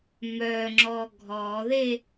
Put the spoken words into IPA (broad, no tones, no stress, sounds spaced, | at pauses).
m œ ŋ͡ǁ ɔ ɡʱ ɔ ð e